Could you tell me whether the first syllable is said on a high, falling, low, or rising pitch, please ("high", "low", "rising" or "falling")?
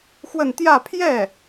falling